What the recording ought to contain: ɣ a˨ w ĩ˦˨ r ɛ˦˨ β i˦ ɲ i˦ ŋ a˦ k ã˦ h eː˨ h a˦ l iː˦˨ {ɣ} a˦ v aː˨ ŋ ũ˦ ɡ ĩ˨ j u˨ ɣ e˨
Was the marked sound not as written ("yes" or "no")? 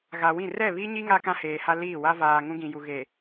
yes